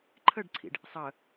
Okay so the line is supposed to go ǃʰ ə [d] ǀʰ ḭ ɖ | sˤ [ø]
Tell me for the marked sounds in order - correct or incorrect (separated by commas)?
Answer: incorrect, incorrect